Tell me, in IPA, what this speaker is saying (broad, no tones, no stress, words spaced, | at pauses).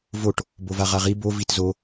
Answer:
voʈ | bovaʁaʁi bo vitzo